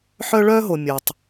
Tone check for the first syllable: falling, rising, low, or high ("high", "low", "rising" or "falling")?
high